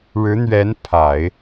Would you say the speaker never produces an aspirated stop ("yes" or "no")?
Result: no